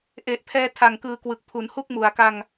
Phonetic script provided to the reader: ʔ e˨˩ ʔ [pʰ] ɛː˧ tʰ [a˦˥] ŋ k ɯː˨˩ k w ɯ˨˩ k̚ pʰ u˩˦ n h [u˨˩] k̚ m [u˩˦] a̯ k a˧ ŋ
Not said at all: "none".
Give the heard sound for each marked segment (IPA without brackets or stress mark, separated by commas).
pʰ, a˨˩, u˥˩, u˩˦